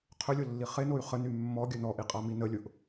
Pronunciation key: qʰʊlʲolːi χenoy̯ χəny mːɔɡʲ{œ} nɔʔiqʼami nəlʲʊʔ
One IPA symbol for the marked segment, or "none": œ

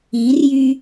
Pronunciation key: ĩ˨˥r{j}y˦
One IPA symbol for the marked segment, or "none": j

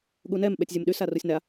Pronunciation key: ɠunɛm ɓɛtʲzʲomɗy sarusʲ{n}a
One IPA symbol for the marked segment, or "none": n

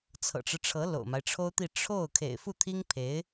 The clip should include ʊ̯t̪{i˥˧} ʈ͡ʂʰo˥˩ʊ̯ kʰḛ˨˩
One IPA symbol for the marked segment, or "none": i˥˧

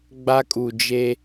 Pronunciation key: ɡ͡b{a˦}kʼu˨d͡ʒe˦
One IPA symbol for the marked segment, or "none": a˦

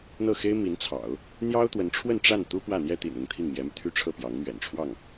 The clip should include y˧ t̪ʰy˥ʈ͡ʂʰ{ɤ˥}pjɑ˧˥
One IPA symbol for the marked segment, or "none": ɤ˥˩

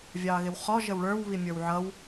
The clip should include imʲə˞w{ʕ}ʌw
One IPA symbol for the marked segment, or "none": ʕ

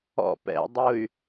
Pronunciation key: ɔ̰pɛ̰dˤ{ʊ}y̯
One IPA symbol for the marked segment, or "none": ʊ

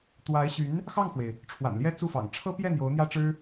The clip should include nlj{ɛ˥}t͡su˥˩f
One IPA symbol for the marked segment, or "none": ɛ˥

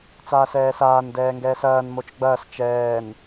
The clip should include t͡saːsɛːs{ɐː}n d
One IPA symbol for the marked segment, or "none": aː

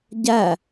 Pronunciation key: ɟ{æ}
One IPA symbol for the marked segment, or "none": æ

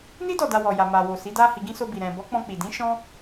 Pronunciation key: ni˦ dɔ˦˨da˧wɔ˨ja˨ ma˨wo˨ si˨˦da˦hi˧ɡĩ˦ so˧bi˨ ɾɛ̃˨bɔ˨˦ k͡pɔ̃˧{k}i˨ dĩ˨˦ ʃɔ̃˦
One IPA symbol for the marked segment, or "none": k͡p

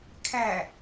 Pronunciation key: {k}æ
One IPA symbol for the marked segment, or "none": kʰ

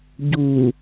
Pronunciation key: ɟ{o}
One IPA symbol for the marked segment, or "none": u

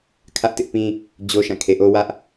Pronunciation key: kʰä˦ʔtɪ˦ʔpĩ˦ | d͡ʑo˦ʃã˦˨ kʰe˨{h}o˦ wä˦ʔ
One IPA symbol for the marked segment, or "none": ʔ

